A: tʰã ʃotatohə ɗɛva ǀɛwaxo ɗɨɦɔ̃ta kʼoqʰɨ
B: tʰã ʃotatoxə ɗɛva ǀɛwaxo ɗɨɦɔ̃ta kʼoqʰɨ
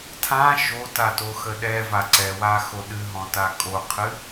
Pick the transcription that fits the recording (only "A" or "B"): B